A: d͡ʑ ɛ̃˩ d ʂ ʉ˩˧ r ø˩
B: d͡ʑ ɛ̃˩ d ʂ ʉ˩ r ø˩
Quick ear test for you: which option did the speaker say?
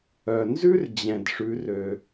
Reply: A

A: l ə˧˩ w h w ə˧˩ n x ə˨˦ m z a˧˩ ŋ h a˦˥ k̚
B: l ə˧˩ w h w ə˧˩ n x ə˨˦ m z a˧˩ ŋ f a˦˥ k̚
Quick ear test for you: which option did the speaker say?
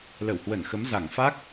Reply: B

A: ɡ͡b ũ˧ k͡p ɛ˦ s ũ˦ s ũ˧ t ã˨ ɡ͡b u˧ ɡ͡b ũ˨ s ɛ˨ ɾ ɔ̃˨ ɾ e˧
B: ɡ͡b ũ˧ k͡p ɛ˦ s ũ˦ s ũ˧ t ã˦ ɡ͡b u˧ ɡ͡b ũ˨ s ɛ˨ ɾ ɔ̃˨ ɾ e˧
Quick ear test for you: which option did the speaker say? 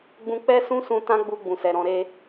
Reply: B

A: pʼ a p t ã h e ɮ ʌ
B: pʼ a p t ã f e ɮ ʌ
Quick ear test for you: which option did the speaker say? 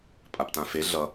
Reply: B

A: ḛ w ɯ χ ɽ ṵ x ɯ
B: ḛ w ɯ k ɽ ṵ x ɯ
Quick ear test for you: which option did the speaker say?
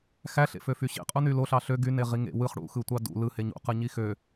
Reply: A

